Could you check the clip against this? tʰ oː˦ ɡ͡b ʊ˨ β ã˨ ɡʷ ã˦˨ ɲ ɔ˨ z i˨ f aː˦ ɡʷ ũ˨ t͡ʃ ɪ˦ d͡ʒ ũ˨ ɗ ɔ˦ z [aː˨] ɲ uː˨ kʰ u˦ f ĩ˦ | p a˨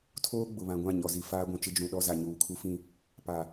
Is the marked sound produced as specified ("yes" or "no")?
no